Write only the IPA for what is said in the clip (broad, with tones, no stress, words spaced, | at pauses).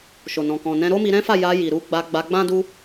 ʃo˨nɔ̃˨kɔ̃˨nɛ̃˧ ɾo˦mi˧ɾɛ̃˦fa˦˨ ja˧ji˨ ɾu˧ɡ͡ba˧ ɡ͡ba˧ɡ͡bã˦du˦